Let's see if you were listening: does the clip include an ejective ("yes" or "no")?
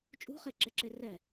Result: yes